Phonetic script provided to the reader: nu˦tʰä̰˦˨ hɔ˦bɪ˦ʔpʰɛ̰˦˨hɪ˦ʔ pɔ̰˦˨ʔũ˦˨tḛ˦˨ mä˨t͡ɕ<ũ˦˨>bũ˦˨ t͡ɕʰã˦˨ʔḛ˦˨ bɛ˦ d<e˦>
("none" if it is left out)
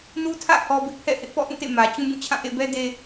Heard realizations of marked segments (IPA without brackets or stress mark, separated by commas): ũ˦, e˦